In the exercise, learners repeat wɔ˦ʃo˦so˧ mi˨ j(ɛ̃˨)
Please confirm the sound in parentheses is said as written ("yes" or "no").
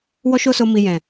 yes